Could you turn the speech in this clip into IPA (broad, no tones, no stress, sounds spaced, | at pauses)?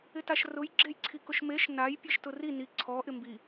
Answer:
ɪ t a ʃ r ʊ j ɡ͡ǁ e j ǀʰ i k ʊ ʃ m e ʃ n a j pʲ e ʃ t ʊ r i n i ǀʰ ɔ ʔ ɪ m b i